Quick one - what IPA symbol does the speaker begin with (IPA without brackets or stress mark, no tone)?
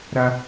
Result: ɾ